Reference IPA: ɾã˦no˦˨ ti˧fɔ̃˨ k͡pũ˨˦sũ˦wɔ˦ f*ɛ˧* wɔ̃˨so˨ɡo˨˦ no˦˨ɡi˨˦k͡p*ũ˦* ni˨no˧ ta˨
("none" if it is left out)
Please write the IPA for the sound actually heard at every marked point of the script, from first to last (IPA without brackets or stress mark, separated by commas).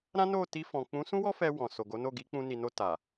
ɛ˧, ũ˧